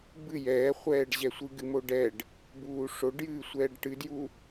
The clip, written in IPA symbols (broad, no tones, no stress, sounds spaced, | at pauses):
b ɨ j ɛː χʷ ɛː ɖ ʑ ɛ sʷ ɨ ɡ ɨ m o ɖ ɛ ɖ | b uː ʂ o ɖ j ɨː sʷ ɛː ɖ ʈ ɨ d j u